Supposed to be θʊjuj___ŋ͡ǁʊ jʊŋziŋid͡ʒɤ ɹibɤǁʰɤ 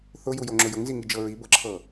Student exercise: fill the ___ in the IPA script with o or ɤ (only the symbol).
o